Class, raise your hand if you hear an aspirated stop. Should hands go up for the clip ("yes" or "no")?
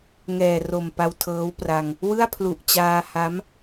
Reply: yes